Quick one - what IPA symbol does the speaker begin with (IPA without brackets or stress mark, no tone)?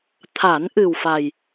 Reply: t̪ʰ